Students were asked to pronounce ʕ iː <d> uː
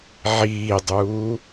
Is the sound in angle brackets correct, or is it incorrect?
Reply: incorrect